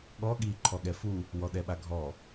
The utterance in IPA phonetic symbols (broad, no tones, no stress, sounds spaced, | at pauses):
ɠ ɔ ɠ i ǃʰ ɔ ɠ ɛ f u | w ɔ ɗ ɛ ɓ a ɡʱ ɔ